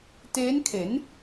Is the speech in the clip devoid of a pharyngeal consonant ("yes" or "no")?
yes